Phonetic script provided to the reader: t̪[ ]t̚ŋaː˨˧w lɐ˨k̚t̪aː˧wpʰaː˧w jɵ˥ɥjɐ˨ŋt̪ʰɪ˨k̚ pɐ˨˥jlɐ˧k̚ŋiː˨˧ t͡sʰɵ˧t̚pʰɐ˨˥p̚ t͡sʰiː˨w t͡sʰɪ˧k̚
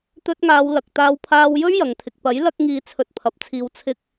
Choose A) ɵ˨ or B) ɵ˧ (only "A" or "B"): B